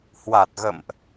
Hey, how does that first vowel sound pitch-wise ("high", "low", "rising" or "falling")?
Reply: low